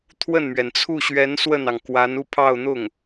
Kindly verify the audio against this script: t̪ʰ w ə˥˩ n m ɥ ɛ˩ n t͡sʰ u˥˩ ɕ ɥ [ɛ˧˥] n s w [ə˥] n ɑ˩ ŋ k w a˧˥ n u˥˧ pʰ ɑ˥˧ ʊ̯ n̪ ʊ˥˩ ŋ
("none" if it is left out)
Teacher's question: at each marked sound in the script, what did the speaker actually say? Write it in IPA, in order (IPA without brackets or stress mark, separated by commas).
ɛ˧˥, ə˥˩